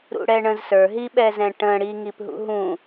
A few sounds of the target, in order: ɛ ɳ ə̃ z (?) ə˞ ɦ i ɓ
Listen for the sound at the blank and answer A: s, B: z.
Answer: A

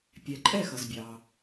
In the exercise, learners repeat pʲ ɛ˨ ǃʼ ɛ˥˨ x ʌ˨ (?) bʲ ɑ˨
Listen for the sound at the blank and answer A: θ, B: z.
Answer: B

